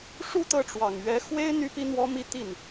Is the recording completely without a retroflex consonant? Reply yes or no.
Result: no